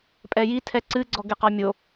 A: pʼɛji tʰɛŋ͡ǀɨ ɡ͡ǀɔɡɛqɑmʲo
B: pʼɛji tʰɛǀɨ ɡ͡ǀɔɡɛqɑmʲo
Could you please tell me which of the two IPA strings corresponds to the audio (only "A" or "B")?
B